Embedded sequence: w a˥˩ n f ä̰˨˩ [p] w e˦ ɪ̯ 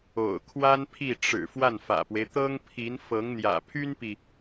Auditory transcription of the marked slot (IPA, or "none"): p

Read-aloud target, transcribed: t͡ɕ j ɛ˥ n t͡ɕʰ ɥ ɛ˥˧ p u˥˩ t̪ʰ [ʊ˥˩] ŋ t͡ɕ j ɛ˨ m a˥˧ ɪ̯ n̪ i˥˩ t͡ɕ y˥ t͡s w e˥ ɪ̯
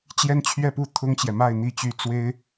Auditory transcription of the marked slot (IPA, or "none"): ʊ˥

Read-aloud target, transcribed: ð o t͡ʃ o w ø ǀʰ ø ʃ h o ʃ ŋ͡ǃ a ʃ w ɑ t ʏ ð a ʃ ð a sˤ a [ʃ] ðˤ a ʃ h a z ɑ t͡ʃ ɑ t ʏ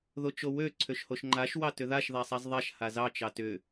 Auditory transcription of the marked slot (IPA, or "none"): z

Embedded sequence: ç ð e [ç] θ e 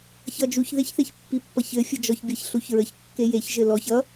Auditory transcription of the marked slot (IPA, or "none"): ç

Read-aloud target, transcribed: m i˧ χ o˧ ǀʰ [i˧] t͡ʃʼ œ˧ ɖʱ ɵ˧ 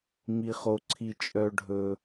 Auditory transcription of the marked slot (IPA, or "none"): i˧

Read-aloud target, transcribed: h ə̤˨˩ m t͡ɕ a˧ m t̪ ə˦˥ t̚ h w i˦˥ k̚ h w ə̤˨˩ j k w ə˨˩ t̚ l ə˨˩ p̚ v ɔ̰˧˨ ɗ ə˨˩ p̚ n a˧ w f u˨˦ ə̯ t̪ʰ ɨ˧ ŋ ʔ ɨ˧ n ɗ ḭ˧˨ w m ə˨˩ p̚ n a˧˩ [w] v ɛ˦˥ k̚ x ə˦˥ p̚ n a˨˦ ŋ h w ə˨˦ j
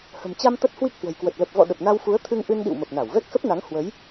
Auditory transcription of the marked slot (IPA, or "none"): w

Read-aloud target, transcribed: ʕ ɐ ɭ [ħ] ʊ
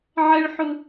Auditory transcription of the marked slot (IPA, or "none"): ħ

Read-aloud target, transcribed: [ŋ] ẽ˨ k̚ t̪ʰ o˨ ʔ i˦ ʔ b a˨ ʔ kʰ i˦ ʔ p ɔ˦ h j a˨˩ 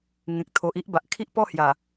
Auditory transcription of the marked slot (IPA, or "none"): ŋ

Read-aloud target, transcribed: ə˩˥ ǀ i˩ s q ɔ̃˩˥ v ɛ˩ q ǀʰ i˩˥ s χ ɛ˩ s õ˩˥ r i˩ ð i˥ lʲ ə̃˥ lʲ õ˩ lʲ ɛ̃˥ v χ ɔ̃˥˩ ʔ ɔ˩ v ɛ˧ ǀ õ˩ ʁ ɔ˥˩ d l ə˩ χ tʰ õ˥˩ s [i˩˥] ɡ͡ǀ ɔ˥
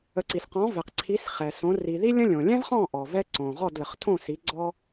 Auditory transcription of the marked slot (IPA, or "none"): i˩˥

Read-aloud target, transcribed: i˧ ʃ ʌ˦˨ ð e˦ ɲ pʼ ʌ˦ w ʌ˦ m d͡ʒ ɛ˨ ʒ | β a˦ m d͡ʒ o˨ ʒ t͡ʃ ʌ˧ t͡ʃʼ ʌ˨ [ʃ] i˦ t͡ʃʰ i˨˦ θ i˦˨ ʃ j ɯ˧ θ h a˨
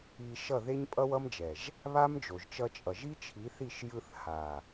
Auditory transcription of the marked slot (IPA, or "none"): ʒ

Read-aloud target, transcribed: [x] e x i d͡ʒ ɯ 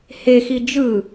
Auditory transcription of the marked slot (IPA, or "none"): h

